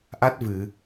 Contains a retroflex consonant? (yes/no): no